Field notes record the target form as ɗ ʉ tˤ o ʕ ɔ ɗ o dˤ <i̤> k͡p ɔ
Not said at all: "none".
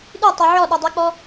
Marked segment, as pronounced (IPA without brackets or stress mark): i